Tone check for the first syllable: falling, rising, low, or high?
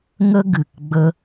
high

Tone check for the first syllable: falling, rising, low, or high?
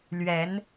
rising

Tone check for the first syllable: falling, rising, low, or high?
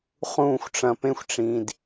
falling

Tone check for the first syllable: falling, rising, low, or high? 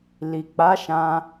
low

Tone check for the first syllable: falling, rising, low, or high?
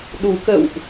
low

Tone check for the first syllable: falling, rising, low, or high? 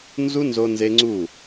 high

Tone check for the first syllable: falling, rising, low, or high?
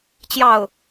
falling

